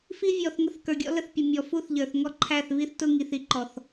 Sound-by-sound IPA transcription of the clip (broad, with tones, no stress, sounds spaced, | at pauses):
f i˦ vʲ ɔ˨ θ ŋ ə˦ θ k ə˞˨ ɡʲ ɔ̰˦ l ə˦ θ pʲ ə˨ mʲ ɔ˨ f u˦ θ ʎ ə˞˨ θ ŋ ɔ˦ ǃʰ æ˦˨ θ β i˦ θ t ʊ˦ ŋ i˨ θ i˦ ǃ ɔ˨ θ